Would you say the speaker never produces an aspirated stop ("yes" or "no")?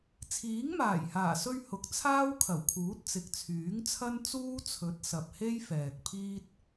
no